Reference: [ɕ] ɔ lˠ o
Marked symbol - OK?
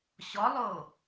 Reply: yes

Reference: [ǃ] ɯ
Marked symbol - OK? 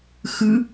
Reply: no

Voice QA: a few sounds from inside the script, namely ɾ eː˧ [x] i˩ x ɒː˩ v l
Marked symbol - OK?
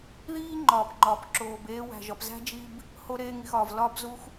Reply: no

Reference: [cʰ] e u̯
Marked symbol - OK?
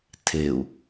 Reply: no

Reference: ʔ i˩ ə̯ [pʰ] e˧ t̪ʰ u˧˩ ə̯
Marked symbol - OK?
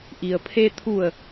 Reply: yes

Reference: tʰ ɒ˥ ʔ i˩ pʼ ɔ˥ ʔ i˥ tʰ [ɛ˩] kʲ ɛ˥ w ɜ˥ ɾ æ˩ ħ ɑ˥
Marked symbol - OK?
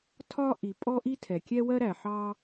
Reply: yes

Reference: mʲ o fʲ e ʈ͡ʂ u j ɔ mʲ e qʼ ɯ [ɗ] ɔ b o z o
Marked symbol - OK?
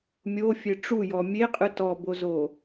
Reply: no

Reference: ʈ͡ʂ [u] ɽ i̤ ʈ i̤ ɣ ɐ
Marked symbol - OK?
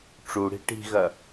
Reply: yes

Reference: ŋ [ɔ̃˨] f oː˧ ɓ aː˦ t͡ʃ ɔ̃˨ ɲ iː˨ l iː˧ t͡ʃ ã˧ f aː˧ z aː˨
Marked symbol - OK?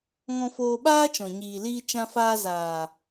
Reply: no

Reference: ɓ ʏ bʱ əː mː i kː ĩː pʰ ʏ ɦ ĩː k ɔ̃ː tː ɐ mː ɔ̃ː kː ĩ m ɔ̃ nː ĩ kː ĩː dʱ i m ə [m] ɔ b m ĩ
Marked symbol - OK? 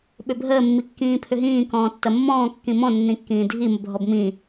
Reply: no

